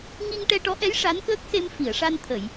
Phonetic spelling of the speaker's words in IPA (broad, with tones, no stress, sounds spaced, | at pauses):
ŋ i˧ ŋ ʈ ɛ˧ ʈ ɔ˧˥ ʔ ɛ˧˥ j ʂ a˧˥ n k əː˦˥ k̚ s e˧ m f i˨˩˨ ə̯ ʂ a˧ n t̪ʰ ə˨˩˨ j